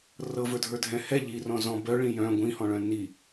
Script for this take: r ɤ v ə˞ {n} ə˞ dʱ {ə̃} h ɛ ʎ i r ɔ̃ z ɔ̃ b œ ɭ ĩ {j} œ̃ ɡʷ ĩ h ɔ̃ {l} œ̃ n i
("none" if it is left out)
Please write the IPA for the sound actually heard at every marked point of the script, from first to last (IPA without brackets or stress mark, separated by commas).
dʱ, ɛ̃, j, ɭ